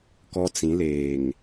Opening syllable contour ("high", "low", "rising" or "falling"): high